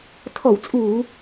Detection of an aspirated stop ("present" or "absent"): present